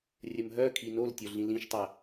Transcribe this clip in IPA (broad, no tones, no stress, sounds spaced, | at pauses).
rʲ ə m ɦ œ kʰ i n o l tʲ o ɮ ĩ l ĩ ʃ tˤ ɐ